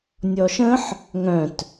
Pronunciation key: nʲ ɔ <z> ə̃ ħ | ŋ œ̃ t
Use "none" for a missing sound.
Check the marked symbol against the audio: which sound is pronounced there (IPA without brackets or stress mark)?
ʃ